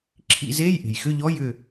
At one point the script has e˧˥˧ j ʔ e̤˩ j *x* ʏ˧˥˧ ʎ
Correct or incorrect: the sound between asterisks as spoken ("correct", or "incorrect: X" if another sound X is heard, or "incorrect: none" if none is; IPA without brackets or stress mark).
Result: correct